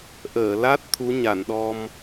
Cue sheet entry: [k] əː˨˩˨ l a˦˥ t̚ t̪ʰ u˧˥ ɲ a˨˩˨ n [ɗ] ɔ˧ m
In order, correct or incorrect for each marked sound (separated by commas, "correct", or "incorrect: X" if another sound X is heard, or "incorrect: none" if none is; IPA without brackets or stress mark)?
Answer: incorrect: ʔ, correct